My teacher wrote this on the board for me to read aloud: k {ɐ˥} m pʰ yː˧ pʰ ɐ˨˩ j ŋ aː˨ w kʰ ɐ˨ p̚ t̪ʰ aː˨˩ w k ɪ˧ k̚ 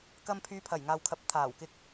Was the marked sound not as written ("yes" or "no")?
no